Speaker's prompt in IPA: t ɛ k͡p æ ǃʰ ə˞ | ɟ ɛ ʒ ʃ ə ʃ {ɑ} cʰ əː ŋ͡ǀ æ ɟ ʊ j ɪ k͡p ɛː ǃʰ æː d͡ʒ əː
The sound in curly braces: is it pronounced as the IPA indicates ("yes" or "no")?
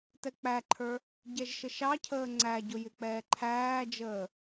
yes